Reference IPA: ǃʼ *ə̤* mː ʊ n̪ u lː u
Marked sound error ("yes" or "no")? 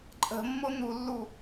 no